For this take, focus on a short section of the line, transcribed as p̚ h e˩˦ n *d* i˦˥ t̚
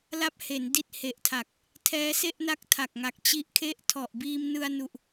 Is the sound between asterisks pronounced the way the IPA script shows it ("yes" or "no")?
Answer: yes